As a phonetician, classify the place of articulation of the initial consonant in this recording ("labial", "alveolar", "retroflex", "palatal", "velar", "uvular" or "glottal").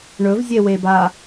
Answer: retroflex